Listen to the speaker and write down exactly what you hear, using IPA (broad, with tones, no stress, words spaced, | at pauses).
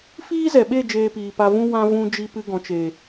fiː˦zɛ˨ɓe˦˨ d͡ʒeː˧piː˨pa˧vũ˦ wã˧ vũ˧d͡ʒi˧ pɨ˧ɡɔ̃˨t͡ʃe˨